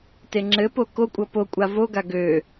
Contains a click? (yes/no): yes